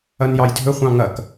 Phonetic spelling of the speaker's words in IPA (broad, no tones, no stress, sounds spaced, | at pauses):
ɐ n j ɑ j dʱ ɵ χʷ ɑ̃ ŋ ɐ k